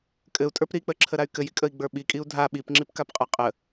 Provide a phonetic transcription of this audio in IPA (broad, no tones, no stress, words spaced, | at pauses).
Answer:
kʼɘu̯tʼə˞p ɾik͡pəǁʰəɾay̯ kɘjikʼəi̯ɡ͡bə˞ ɓikʼiu̯ dʱa ɓipŋ͡ǁipkapqʼa qʼə